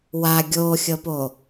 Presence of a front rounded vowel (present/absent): absent